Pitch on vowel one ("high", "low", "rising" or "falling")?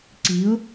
rising